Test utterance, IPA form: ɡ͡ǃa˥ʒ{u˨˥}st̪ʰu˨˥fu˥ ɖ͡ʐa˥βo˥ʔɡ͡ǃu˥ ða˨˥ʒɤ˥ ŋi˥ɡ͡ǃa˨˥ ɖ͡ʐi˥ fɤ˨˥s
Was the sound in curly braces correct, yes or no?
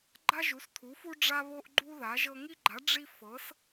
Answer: yes